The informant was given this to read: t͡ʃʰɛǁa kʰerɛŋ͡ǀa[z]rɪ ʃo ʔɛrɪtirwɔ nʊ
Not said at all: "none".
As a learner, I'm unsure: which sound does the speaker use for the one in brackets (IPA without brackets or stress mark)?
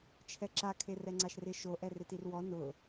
ʃ